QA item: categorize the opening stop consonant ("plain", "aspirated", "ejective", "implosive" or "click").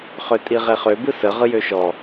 ejective